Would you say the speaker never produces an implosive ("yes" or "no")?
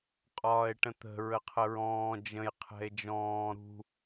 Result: yes